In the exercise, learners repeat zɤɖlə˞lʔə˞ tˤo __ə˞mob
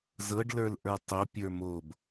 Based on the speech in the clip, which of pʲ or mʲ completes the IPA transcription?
pʲ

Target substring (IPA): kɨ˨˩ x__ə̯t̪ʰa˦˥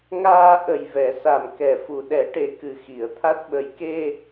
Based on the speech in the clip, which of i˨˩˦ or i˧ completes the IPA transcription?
i˨˩˦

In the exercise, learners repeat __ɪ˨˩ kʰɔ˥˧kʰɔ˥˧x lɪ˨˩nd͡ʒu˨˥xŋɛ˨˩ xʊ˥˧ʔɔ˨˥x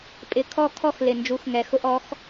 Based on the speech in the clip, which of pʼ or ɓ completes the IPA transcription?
pʼ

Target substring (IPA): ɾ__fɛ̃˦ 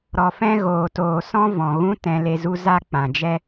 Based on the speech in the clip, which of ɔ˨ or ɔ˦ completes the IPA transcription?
ɔ˨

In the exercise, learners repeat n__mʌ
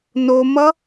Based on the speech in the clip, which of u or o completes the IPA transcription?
o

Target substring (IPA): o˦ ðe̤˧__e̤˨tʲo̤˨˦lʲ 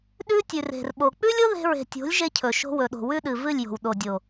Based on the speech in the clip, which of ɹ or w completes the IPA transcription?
ɹ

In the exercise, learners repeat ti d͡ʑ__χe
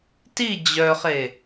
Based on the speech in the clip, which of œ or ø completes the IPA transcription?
œ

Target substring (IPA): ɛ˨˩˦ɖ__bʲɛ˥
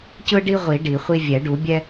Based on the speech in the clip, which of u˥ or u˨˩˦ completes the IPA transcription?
u˨˩˦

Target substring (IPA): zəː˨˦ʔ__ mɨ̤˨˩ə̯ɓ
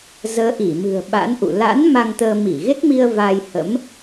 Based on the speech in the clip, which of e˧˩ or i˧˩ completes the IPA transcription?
i˧˩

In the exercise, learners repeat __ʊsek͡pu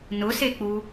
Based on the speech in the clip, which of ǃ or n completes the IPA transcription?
n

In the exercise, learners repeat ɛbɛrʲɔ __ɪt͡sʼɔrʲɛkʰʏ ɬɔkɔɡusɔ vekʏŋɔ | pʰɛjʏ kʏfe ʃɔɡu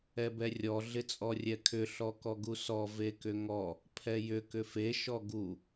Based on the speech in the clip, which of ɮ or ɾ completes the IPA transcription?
ɮ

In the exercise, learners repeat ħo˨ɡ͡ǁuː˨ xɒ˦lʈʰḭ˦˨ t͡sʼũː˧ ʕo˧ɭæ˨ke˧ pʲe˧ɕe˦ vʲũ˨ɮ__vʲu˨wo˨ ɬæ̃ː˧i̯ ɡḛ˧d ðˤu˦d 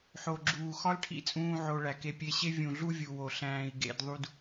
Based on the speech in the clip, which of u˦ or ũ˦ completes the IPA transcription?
u˦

